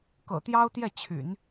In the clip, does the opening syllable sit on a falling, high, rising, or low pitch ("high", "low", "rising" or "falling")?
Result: low